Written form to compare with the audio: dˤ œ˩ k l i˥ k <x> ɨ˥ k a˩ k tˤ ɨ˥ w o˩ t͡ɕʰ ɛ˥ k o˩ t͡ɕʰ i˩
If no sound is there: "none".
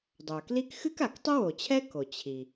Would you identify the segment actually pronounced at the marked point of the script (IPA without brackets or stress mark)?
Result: x